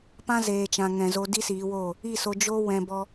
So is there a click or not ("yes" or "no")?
no